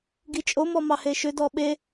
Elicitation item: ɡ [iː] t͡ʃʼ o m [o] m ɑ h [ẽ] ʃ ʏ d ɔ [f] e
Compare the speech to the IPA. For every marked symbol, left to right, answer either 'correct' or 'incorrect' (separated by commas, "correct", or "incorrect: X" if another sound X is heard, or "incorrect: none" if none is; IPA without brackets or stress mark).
incorrect: i, incorrect: ɔ, incorrect: e, incorrect: ɓ